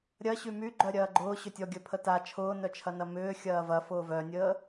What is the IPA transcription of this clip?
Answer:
ɾʲɐ ɕymyɡ͡ǃœ ɾʲɐːɡ͡ǃʊː ɕʏtʲɔɡʲœ pʰəta t͡ʃʰʊːnœt͡ʃʰɐnɐ mʏː xʲɐːvɐ fʊːvœnʲəː

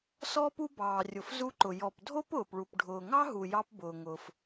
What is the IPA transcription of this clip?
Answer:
sɔː˧pu˧ bɑː˩rʲʊ˩fzu˧ǃʊ˩ jɔ˩pdʱo˥p ʊː˩pɭu˩p ɖʱʊː˩ŋɑ˥ɦu˩ jɑ˧pbʊː˩ŋʊː˩f

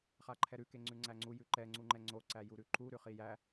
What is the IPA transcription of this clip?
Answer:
χaǃʰɛɾʉ keŋ͡ǀʉŋ͡ǀæŋ͡ǀu jʉǃɛ ŋ͡ǀuŋ͡ǃɛŋ͡ǀo ǀæjuɾʉǃu ɾʉχijæ

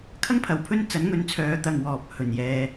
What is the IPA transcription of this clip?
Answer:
kʰɐ˥ŋpʰɐ˨wpʰɵ˥n t͡sɐ˨˥nŋɵ˨˥nt͡sʰœː˨˧ t̪ɐ˨ŋwɔː˨p̚ hɵ˨njɛː˧

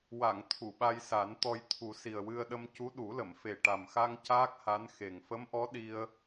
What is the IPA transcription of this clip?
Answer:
wa˨˩˨ŋ t̪ʰu˨˩˨ɓa˧jsa˨˩˦nt̪ɔ˧j t̪ʰu˨˩˦si˨˩ə̯wɨ˧ə̯ɗə˧m cu˧˥ɗu˨˩˦lə˨˩˨m fe˨˩ʈa˨˩mxa˧ŋ caː˦˥k̚ha˧˥n xe˨˩ŋ fə˧˥mʔɔ˧˥ ɗi˧ə̯

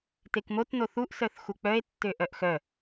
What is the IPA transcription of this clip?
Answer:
tekmotno θuʔsœθ xuk͡pœe̯tːø ʔœʔxœ

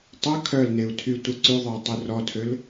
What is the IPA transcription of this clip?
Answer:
tˤœ kʰœlneu̯ tʰy tʷə ǀyðˤøu̯ tˤørɔtʰøl

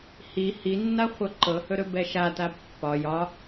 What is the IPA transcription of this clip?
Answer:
hi hinːa χʷɤǃɤhɵɾɵ bɛʃata pːɒ jɒ

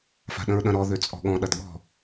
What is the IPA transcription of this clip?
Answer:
fa̤ɗə̃ɹɗɐ̃ɾɔ ðøt͡sʼɔ̤ɠɔ̃ ɗɐdɠɔ̤

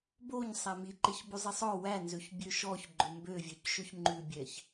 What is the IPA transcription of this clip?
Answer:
boɲ sˤæmiǃeç bʉzˤisˤɔ wænzøç bʲøʃɔç ɡ͡ǃɵmbøvʲœcʃɵç ŋ͡ǃʉbʲɛç

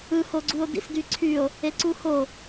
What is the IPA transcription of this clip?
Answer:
ɯhoɡ͡ǀuo̯ dḭsdyǀʰyo̯ | eǀuho

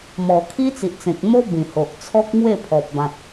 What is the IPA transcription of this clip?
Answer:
mɔ˨˩kʰi˦t͡si˨ʔt͡sẽ˨k̚ mo˦ bĩ˨˩ho˨ʔt͡sʰɔ˦k̚ŋwe˥˧ pʰɔ˨p̚bã˨t̚

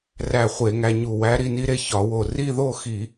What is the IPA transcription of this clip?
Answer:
ræ˧˩ χʷe˧˩˧ŋæ˧ɲu˧˩ wæ˧˥ɾi˧ni˧˥ɾe˧ çɒ˧˩˧wo˧˩ ri˥˧ðo˥˧xi˧˩˧

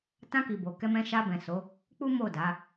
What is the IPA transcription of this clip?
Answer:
tã˧ki˨ bo˨kɛ˧mɛ̃˧ ʃa˧bɛ̃˨so˨˦ | k͡pu˦mo˦˨da˨˦

